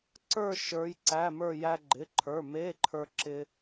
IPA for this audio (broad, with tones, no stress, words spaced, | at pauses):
ǀə˞˥˧ ʃə˞˧˥jǀæ˧˥˧mə˞˥˧ jæ˧ɡ͡ǃɪ˩˧˩ǃʰə˞˩˧˩ me˧˥˧ǃʰə˞˧ ǁɪ˧